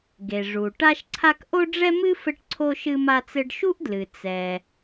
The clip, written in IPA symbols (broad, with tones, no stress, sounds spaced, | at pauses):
ɡ e˩ ʐ u˩ ʈ a˥ ʃ ǀʰ a˥ k ʔ o˥ ɖ͡ʐ ɛ˥ m ɨ˥ f ɘ˥ ʈ ǀʰ o˥ ʃ ɨ˥ m a˥ t͡s ɘ˥ ɖ ʃ u˥ ʔ d l ɨ˩ t͡s ɛ˩